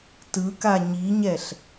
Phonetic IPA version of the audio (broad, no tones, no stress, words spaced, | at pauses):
tɯka ɲiɲɛɬ